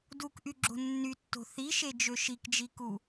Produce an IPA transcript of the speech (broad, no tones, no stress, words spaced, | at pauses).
dukʔy ɡ͡ǁo̤nːytːo̤ θiʃe d͡ʒøʃikd͡ʒiku